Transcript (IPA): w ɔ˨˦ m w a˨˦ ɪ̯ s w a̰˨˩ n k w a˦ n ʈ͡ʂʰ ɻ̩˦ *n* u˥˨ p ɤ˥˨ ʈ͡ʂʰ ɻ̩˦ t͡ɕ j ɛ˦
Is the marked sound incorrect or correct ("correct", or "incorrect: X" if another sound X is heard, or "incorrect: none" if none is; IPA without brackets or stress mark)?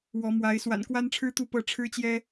incorrect: t̪